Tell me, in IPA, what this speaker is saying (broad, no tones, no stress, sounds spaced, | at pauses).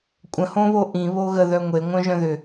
kʷʼ ə̃ h õ β o ʔ ĩ β o ɣ ə ð œ ŋʷ e ŋʷ œ̃ ʒ œ̃ ð ʏ